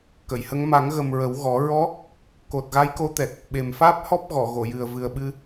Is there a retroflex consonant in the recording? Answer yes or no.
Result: no